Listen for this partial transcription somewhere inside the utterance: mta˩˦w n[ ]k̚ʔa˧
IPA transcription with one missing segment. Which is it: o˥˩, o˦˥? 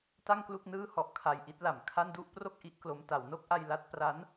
o˦˥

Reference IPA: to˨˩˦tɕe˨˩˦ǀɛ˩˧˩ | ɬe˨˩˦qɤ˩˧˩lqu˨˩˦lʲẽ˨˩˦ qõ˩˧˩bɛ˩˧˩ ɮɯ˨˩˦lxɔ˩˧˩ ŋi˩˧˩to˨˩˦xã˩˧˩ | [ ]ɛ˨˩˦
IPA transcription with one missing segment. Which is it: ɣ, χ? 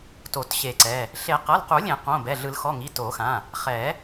χ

